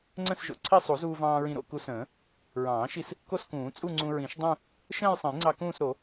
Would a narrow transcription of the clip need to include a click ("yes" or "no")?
yes